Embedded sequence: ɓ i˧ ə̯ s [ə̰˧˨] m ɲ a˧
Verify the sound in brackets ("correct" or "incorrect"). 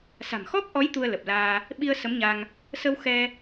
incorrect